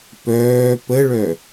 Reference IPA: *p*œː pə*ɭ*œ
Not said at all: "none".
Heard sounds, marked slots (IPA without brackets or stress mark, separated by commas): p, ɭ